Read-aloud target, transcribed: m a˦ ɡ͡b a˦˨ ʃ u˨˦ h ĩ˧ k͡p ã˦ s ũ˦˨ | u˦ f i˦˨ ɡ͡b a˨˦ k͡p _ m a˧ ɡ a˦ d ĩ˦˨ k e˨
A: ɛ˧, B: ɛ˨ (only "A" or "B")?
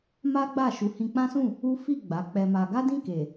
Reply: A